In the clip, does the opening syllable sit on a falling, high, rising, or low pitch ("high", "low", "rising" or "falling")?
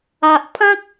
low